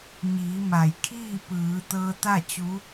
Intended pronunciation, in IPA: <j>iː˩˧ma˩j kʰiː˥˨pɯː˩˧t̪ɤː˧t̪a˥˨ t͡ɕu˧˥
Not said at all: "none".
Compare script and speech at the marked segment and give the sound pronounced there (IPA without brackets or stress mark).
ɲ